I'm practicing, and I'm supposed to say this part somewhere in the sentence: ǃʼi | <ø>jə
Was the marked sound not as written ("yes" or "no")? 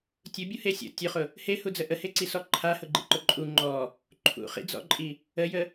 yes